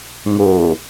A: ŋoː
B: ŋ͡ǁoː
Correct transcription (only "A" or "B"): A